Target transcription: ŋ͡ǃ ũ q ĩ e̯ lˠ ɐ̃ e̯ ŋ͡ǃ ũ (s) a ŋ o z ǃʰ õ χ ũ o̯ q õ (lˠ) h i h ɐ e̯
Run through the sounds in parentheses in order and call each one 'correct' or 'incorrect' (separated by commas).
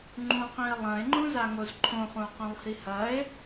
incorrect, correct